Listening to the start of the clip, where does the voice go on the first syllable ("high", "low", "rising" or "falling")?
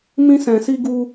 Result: high